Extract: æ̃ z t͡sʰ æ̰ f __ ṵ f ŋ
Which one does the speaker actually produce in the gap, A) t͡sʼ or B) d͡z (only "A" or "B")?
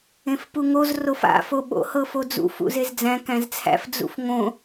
B